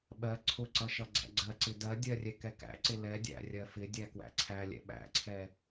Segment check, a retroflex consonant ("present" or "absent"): absent